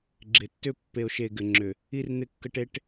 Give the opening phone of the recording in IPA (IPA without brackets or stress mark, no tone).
ɡ͡ǁ